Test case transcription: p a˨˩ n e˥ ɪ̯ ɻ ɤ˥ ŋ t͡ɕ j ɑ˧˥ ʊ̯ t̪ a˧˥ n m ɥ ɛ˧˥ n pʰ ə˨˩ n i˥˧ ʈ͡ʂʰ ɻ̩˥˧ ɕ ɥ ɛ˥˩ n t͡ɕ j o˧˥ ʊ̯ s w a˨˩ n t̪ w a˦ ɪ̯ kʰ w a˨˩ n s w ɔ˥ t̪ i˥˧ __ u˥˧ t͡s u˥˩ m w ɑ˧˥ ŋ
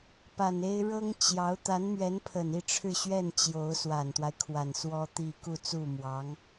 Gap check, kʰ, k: k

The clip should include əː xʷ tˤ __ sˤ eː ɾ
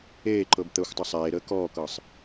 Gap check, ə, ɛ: ə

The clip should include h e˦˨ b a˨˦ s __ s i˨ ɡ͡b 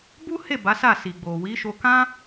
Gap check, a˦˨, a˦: a˦˨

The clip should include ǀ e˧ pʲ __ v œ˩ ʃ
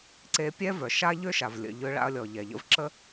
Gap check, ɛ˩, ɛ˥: ɛ˥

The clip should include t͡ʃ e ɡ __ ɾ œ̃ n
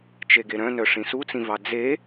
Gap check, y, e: e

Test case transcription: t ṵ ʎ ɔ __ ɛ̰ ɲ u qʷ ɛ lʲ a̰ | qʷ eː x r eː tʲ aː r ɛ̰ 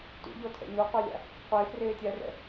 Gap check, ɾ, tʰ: tʰ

